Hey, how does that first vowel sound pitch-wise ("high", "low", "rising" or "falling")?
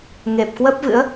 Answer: low